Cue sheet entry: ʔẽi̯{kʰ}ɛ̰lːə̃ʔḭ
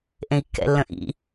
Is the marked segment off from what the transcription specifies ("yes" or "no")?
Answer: yes